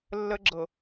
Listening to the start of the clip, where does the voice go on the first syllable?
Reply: high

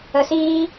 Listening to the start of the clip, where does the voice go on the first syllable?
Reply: low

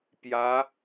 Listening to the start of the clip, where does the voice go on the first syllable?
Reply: rising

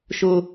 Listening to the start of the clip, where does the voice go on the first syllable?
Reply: high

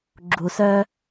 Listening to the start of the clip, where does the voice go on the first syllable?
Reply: low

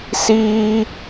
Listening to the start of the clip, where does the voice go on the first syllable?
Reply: high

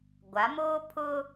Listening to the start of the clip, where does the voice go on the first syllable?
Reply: rising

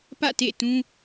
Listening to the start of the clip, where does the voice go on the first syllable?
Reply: falling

